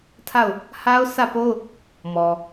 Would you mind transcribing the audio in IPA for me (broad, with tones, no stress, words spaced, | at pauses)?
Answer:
tʰa˦˨ʊ̯ | ha˦ʊ̯sä˦˨po˦ʊ̯ | mɔ˨